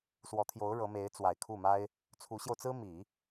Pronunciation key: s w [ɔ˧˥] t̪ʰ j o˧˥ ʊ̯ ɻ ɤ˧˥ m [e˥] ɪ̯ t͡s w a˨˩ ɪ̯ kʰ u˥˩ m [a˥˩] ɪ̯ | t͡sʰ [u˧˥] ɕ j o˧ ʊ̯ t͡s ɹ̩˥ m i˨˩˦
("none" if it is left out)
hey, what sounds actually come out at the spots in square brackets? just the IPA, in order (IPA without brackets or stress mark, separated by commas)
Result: ɔ˧˥, e˧˥, a˥, u˧˥